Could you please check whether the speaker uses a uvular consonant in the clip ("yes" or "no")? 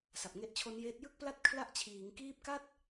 no